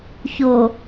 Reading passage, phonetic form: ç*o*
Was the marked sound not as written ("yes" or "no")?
no